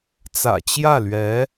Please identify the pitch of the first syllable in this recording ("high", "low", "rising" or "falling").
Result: low